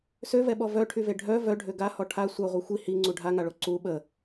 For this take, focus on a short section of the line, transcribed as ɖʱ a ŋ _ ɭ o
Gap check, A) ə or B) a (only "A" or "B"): B